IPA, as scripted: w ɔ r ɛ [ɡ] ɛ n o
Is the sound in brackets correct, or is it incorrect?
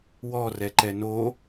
incorrect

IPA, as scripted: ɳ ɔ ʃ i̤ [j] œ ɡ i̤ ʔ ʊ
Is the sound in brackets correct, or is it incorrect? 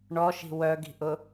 incorrect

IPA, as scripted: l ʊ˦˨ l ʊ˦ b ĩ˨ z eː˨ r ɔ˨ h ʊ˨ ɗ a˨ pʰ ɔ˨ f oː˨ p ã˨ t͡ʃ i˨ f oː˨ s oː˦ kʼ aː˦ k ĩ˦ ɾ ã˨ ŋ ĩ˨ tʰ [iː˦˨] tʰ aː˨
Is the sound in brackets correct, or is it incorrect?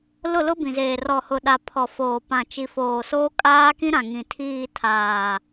correct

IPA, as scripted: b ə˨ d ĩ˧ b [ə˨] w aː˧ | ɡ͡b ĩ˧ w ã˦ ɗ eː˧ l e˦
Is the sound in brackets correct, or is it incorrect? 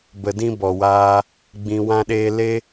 incorrect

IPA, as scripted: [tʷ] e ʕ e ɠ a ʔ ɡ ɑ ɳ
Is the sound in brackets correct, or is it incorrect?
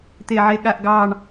incorrect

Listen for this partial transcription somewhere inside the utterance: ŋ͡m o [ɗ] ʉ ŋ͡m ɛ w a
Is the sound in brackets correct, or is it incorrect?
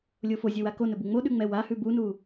correct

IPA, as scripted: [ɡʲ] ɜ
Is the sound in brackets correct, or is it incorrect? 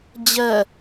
incorrect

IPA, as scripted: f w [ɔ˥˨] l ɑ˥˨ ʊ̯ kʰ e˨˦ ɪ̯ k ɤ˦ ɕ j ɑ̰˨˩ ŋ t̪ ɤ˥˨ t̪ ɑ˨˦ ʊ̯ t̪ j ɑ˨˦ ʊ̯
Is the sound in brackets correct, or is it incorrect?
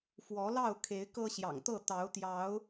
incorrect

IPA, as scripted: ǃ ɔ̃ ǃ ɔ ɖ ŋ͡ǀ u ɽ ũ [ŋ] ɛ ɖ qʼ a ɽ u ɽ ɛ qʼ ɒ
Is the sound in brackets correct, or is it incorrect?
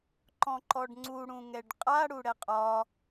correct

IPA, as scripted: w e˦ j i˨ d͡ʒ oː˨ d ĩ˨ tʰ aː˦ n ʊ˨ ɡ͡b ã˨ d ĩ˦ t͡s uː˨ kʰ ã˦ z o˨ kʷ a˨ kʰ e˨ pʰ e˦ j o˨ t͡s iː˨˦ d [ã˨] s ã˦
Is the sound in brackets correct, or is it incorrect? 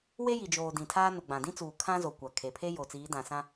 correct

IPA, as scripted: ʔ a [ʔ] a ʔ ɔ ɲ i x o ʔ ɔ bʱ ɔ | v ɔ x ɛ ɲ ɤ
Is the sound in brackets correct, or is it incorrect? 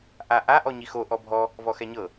correct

